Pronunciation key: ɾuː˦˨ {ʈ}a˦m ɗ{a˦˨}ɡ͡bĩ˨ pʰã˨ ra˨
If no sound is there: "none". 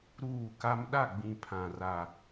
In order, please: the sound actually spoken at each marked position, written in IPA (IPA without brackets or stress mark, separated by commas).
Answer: k, a˦˨